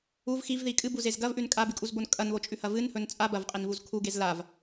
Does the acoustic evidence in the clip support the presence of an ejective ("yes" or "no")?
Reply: yes